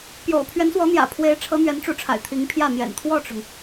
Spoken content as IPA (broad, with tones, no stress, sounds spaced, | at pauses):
p j o̰˨˩ ʊ̯ pʰ ɥ ɛ˧˥ n s w ɔ˧˥ n̪ j ä̰˨˩ pʰ w e˧˥ ɪ̯ ʈ͡ʂʰ ɤ˧˥ n̪ ɥ ɛ˧˥ n ʈ͡ʂ u˧˥ ʈ͡ʂʰ a̰˨˩ ɪ̯ t̪ʰ i˧˥ ŋ pʰ j ä˥˩ n̪ j ɛ̰˨˩ n t̪ʰ w ɔ˥˩ ʈ͡ʂ ʊ˩ ŋ